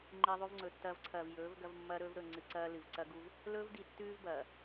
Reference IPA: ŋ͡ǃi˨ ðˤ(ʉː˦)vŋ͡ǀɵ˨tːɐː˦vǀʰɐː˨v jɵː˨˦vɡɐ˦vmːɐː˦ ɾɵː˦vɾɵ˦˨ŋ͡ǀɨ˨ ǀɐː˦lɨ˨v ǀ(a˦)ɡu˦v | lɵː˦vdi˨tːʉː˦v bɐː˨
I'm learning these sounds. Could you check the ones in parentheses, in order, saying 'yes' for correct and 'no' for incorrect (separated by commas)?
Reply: no, no